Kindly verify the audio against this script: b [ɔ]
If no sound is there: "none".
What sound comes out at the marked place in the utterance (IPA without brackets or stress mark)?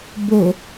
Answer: o